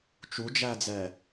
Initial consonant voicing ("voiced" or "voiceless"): voiceless